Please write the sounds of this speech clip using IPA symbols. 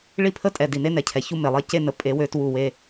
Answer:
ɭ i˦ pʰ ə˦ tʼ ɛ˨ d i˨ n e˦ n ɛ˨ cʰ ɛ˨ ç u˦ m e˨ lˠ e˦ c e˦ n ə˨ pʼ e˨˦ w ø˧ t w u˦˨ w e˦

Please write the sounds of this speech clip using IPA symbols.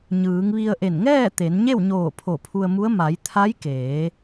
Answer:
ɲ ɯː˩˧ ŋ ʋ i˧ ə̯ ʔ e˧˩ n ŋ ɛː˥˨ t̪ e˩˧ n ɲ e˥˨ w ɲ oː˧˩ pʰ o˧˩ pʰ u˧ ə̯ m u˧˥ ə̯ m a˩˧ j t̪ʰ a˧˥ j k eː˩˧

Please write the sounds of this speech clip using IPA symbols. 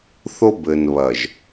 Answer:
θ o˦ b ɘ˨ n β ɐ˨ ʒ

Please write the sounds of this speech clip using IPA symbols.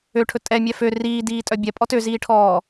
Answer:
ø ʈʰ ɵ tʼ ɛ mʲ ɛ f ø r iː d iː tʼ œ bʲ ɛ pʼ ɔ t ø z iː ʈʰ ɔː

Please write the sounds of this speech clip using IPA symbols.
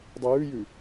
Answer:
dˤ e j ʉ j ʉ

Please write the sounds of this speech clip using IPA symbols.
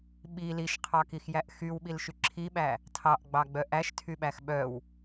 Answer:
ɓ i l i ʃ qʰ ɑ k i x j æ ʔ x y w ɓ i l ʃ y ǁʰ i ɓ æ | tʰ ɑ ʔ ɡ͡b ɑ ɡ͡b œ ʔ æ ʃ tʰ y ɓ æ x ɓ œ w

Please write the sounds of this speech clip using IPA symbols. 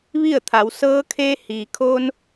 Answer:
ʋ i˥˨ ə̯ t̪ʰ a˩˧ w s ɤː˧ kʰ eː˧ h iː˩ kʰ oː˧ n

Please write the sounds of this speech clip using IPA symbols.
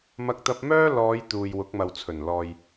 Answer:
m ɐ˧ k̚ t̪ ɐ˧ p̚ m œː˥ l ɔː˨˧ j t̪ uː˨ j w ʊ˨˥ k̚ m ɐ˨ w t͡sʰ ɵ˨˩ n l ɔː˨ j

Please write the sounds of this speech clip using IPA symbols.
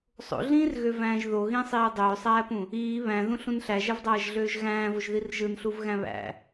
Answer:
sˤ o̰ ɮ ĩː r ɣ ø v æ̃ː ʒ ð o ɣ ĩ sˤ iː dˤ øː sˤ æː p ũ | iː β æ̃ ð ũ ɬ ũ n ɬ æ ʒ æ v dˤ æː ʒ ɮ øː ʒ ɣ æ̃ː v o ʒ ð i r ʒ ɯ n ɬ u v ɣ æ̃ β æ̰

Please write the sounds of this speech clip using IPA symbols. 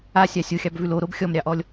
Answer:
a sʲ ɑ sʲ o xʲ ɑ b v ʉ l o ɾ o b xʲ ɔ m ɾʲ ɑ ʔ ɔ lʲ

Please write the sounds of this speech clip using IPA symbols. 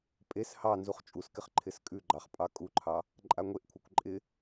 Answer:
pʼ e s h ɑ n z u χ t͡ʃʼ u s k ɪ χ ǃʰ ɪ s kʼ ʉ ɡ͡ǃ ɑ χ pʼ ɑ kʼ u ǃʰ ɑ | ǃʼ a ŋʷ e ʔ kʷʰ a kʷ ǃʼ ɪ

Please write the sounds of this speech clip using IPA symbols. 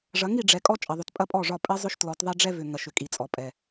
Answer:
ʐ ɐ˨˦ ŋ i˨ ɖ͡ʐ ɛ˨ kʼ ɔ˦ t͡ʃʼ ɐ˨ ðˤ ʏ˨ t pʼ ɐ˦ pʼ ɔ˦˨ ʐ ɒ˦˨ pʼ ɛ˦ zˤ ʏ˦ ʃ t l ɔ˨˦ t ðˤ ɛ˦ ɖ͡ʐ ɛ˦ v ʏ˨ ŋ ɐ˨ ʃ ʏ˨ kʼ i˨ t͡sʼ ɔ˨ pʼ ɛ˨

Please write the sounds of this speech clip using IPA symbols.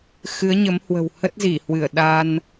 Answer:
x ɨ˨˦ ə̯ ɲ ə˨˦ m h w ə̤˨˩ w h ə˦˥ t̚ z i˧˩ h w ɨ˧˩ ə̯ ɗ a˧ n

